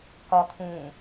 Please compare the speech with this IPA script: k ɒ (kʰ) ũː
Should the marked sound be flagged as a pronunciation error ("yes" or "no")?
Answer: no